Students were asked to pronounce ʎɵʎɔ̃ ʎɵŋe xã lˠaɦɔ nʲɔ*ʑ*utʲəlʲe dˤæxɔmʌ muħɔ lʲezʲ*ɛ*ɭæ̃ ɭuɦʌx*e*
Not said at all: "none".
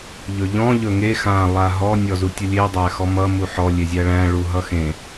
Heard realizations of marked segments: z, æ, ẽ

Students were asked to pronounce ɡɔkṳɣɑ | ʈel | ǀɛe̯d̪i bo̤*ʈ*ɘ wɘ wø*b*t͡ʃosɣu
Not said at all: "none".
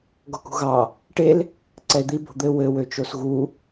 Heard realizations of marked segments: d̪, none

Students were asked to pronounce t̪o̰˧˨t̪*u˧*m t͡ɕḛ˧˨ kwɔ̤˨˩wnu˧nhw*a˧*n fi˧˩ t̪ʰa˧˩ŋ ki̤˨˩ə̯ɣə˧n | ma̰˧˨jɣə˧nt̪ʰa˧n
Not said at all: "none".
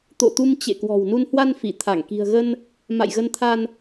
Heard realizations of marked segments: u˧, a˧

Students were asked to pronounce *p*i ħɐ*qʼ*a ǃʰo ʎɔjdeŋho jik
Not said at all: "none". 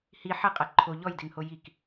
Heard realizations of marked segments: h, qʼ

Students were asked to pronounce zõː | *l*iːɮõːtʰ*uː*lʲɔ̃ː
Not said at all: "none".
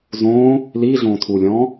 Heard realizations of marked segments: l, uː

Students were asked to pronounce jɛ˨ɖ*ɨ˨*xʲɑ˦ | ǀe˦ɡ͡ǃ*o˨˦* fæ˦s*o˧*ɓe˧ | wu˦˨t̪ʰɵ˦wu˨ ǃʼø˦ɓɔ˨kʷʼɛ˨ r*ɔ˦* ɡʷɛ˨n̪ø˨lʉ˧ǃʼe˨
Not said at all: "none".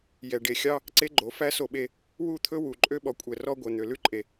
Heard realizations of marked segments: e˨, o˨˦, o˧, ɔ˦

